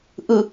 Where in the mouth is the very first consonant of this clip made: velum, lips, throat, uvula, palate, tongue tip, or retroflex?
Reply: throat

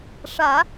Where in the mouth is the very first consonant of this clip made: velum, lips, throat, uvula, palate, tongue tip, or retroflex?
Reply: retroflex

